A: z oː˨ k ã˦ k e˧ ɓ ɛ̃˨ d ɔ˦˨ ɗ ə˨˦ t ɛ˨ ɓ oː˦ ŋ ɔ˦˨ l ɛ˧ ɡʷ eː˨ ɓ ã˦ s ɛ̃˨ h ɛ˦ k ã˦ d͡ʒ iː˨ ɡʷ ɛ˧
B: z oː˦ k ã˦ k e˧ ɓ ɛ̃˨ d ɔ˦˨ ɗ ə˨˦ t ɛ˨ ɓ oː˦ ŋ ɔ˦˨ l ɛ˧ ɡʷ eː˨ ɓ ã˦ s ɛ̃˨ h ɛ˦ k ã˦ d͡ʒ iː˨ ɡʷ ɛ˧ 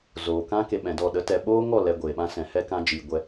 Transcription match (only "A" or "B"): A